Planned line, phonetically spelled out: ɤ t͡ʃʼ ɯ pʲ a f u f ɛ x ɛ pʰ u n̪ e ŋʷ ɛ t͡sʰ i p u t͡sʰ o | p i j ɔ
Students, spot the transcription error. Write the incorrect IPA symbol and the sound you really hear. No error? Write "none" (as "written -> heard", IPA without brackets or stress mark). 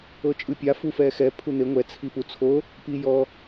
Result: none